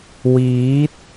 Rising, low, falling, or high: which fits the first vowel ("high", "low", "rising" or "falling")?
rising